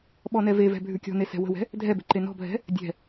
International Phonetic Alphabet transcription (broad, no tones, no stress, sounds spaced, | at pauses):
ɓ ɔ n ɛ v e v ɛ̤ bʱ ʉ kʲ ɔ̤ n e s ɛ̤ w ə̤ w ɛ̤ | dʱ ɛ b e̤ ǃ e n ɔ̤ bʱ ɛ̤ | dʲ ɛ̤